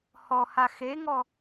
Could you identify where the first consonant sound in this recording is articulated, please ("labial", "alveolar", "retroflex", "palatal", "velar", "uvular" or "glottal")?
glottal